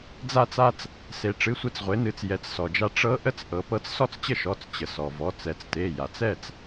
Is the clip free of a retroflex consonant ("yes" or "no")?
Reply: no